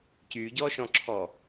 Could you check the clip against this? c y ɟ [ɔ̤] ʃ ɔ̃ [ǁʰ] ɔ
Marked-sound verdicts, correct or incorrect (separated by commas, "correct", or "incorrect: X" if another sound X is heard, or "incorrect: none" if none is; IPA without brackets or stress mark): incorrect: ɔ, correct